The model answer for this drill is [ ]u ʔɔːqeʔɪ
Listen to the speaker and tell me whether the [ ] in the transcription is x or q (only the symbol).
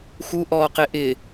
x